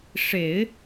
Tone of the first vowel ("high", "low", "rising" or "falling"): low